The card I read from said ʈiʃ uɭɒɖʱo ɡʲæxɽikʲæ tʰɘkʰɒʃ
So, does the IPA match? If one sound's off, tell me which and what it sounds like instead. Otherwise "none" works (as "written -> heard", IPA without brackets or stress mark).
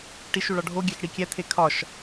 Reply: ɘ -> e